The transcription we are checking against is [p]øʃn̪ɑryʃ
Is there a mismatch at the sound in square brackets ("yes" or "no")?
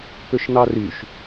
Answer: no